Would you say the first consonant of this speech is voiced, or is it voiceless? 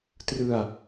voiceless